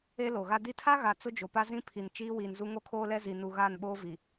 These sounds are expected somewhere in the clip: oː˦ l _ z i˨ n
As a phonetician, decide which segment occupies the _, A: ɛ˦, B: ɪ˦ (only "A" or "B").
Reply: A